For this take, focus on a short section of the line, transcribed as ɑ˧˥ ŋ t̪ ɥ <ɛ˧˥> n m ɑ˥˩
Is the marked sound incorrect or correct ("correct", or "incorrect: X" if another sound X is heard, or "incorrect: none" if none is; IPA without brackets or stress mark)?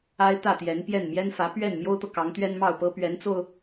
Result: incorrect: ɛ˥